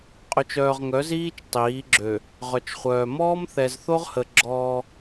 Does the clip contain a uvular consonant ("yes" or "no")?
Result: yes